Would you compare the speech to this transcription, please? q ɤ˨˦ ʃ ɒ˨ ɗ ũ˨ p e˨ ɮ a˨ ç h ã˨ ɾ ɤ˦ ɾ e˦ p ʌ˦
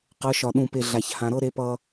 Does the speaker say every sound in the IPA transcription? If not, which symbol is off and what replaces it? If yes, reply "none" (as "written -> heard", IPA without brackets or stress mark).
none